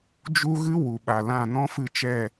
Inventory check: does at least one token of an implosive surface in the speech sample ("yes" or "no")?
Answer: yes